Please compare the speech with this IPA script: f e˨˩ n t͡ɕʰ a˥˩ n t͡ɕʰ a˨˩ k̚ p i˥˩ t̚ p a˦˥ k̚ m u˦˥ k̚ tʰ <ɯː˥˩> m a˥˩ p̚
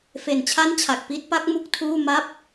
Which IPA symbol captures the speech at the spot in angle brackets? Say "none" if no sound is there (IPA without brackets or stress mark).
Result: uː˥˩